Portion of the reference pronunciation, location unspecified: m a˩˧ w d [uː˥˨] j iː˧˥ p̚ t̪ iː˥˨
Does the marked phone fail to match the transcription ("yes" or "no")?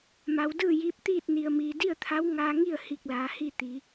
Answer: yes